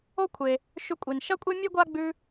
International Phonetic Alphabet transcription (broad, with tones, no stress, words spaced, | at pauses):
o˥kʷʰe˨ | ʃʉ˦kʷʼi˩n ʃɐ˥kʷʼe˥mʲʉ˥ ɡʷa˥ɡ͡bʉ˦